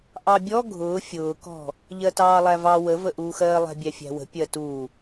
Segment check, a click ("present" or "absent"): absent